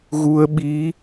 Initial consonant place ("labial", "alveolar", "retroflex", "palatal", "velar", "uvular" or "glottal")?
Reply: velar